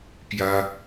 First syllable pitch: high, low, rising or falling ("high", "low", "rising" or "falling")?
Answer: high